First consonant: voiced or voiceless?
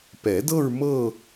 voiceless